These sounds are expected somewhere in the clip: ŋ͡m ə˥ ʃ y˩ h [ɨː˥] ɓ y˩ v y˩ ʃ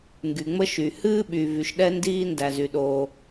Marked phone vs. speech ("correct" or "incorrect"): correct